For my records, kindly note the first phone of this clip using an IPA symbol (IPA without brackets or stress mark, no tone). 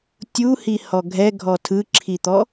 tʲ